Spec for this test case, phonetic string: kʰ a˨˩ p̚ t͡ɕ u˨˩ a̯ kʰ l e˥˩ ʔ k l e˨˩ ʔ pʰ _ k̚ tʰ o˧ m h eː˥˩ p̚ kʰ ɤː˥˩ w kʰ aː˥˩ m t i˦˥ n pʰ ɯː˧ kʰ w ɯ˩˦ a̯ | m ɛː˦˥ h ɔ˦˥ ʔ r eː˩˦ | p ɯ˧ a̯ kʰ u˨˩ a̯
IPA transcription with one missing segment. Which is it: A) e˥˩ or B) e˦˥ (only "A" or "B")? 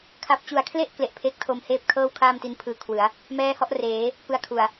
B